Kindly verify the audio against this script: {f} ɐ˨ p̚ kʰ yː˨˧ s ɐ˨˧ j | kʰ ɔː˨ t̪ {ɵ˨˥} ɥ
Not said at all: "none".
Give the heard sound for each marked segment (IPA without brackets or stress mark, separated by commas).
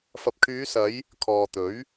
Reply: f, ɵ˨˥